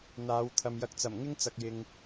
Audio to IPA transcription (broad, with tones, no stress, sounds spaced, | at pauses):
n̪ aː˨˧ w t̪ʰ ɐ˨ m j ɐ˨˥ k̚ t͡s ɐ˨˩ m ŋ ɪ˥ ŋ t͡s ɐ˨ k̚ j ɪ˨ ŋ